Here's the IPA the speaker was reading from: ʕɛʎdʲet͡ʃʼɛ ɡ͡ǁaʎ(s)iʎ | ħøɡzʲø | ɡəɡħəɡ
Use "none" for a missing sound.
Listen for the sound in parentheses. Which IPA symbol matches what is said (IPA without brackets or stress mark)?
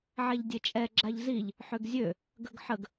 z